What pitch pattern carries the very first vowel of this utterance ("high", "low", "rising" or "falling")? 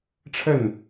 falling